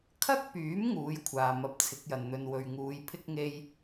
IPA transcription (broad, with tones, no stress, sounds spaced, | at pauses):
kʰ ɐ˥ k̚ p yː˨˥ m ŋ uː˨˥ j kʷʰ aː˨ m ɐ˧ p̚ t͡sʰ ɪ˨˥ k̚ j ɐ˨ n n̪ ɵ˧ n w ɵ˨ ɥ ŋ uː˨˧ j pʰ ɪ˥ k̚ ŋ e˥ j